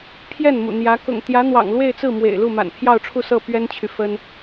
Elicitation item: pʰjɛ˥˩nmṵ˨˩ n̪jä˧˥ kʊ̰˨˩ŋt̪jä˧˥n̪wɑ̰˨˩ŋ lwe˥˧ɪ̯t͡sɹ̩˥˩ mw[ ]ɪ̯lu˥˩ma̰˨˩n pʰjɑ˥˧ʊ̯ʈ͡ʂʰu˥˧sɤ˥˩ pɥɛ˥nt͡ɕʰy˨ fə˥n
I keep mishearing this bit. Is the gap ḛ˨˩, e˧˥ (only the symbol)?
ḛ˨˩